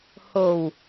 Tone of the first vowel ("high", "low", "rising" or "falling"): low